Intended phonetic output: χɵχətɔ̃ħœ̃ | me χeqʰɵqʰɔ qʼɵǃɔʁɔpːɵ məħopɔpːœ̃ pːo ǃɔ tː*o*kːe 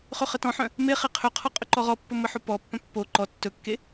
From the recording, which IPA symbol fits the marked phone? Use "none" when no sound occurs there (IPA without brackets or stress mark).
ɵ